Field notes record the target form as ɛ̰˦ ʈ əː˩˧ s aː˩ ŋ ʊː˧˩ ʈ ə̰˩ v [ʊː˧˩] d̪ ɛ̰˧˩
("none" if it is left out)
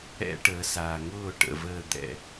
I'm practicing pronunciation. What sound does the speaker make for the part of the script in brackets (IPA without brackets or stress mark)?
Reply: əː˧˩